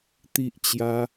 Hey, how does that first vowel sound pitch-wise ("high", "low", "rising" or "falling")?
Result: high